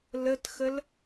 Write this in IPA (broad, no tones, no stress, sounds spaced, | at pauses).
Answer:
l ə t x ə l